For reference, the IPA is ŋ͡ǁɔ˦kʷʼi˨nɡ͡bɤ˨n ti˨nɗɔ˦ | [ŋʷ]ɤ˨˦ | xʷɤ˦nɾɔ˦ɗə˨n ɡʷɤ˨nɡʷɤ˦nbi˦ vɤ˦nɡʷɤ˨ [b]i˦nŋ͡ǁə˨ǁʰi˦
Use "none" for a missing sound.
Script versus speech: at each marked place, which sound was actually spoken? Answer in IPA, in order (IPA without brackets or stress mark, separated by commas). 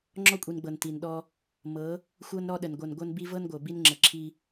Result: m, b